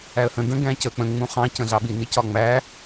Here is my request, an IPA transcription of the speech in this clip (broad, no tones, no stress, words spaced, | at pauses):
æə̯hə̃ də̃ ɡæ̃cə k͡pə̃ ŋ͡mũχɑ̃ cə̃ɮɑɓi nicɒŋ͡mæ